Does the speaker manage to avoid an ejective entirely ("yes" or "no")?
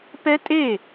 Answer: no